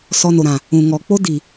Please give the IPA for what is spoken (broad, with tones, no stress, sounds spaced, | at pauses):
s ɔ˧ n o˨ ɾ ã˨ | ũ˨ ŋ ɔ˨ k͡p o˦ d i˨